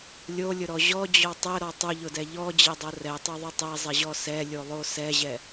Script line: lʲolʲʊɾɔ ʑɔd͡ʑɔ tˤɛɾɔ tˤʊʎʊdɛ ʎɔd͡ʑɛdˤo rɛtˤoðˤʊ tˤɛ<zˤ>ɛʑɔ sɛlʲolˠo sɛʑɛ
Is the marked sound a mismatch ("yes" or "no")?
no